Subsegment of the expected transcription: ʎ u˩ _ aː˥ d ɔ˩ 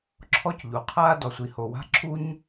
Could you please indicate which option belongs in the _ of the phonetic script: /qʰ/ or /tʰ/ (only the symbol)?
qʰ